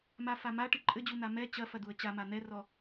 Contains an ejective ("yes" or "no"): yes